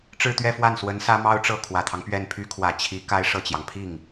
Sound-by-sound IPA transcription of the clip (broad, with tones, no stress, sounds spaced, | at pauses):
ʈ͡ʂ ɻ̩˥˧ t̪ ɥ ɛ˥˧ f w a˥˩ n s w ə˧˥ n s ä˥ m ɑ˥ ʊ̯ ʈ͡ʂ ɤ˥˩ kʰ w ä˨˩ t̪ʰ ɑ˦ ŋ p ɥ ɛ˥˩ n pʰ y˥ kʰ w ä˨˩ t͡ɕʰ i˧˥ k a˥ ɪ̯ ʂ ɤ˥˩ t͡ɕ j ɑ˩ ŋ pʰ i˥˩ ŋ